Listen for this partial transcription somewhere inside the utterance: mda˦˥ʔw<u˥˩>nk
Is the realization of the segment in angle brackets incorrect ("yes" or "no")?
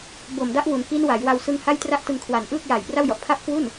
yes